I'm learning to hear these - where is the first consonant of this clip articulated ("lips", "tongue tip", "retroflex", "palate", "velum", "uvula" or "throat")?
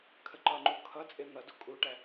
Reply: velum